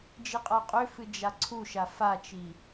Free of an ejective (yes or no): no